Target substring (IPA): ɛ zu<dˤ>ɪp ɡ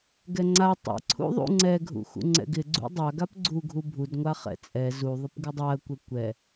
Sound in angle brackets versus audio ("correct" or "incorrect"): incorrect